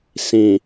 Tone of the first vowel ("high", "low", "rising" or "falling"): low